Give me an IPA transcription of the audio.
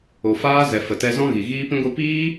o˨ f aː˦ z ɛ˨ f ə˨ t ɛ˧ z ɔ̃˦ ɣ i˨ ɣ iː˦ p ĩ˦ ɡʷ i˦ p iː˦

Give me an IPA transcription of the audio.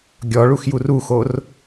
ɡʲ ɔ ɭ u x j u r u x o r

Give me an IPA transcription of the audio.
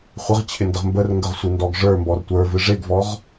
χʷ ə ʁ t͡ɕʰ ɪ n d ə ʁ m b ə r ŋ ɡ ə ʁ sʷ ɨ n d ɔ ɡ ʐ ə˞ m b ɔ r tʷ ə˞ v ɨ ʐ e ɡ v ɔ ʁ

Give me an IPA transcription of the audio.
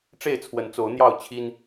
ʈ͡ʂ e˥˨ ɪ̯ t͡sʰ w ə˨˦ n t͡s o˨˦ ʊ̯ n̪ j ɑ˥˨ ʊ̯ t͡ɕʰ i˦ n

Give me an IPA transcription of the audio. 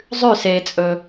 zˤ ʉ s eː t͡sʼ ɵː

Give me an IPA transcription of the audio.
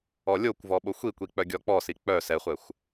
ɔ lʲ o kʷ v ɔ ɓ o xʷ i kʷ i k͡p œ ɡʲ ɔ k͡p ɔ s i k͡p œ s ɛ χʷ ɛ xʷ

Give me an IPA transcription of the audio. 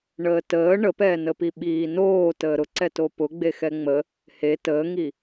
ɳ əː t əː ɳ ə p ɛː n ə p i ɓ iː n oː t əː ɾ ʊ ǀ ɛ t o p ʊ ɡ͡b e x ɛ ŋ͡m ə | h e t əː ŋ i

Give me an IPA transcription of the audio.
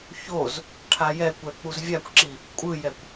ç o z | ʈʰ a j ɛ kʷ ɛ k͡p u z vʲ a kʷ ǁ i | kʷʼ ɯ j ɛ kʷ

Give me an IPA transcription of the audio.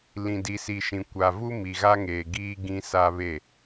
l ĩ˨ d i˨ s i˨ ʃ ĩ˨ kʷ a˨ v u˦ m i˨ ɣ a˦ ŋ eː˨ ɡ iː˦ ɡ ĩ˦ s a˦ β e˦˨

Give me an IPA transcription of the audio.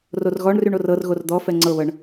r o r ɣ ɔ ɳ r y ɳ o r ɤ r ɣ o r d̪ ɔ f ɛ ŋ͡ǀ ɤ β ɤ ɳ

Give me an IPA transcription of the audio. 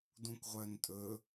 d ũ kʷ ʁʷ œ n tʼ ɵ

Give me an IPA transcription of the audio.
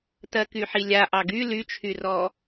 t ɜ k y ħ i lʲ a ʔ ɑ ɡ y l y t͡ʃʰ y r ɔ

